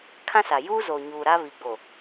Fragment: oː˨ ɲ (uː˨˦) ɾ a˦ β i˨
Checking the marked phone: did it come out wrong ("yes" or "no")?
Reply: yes